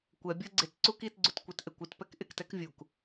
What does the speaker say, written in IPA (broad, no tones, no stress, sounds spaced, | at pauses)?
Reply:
kʷ ɛ bʲ ɤ ɡ͡ǀ ɪ t ǀ u k i t ɡ͡ǀ u t kʷ ɛ t ʔ e kʷ ɪ t p ɛ k ʔ ɪ k t ɛ k vʲ u k